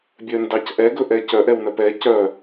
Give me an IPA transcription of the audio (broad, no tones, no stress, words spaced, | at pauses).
bʲœndɑcʔɛ ɡɵʔɛcœ ʔɛwnœpɛ cœ